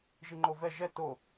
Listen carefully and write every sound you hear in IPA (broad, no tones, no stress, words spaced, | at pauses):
ʒiŋ͡ǃovɛ ʒɛ to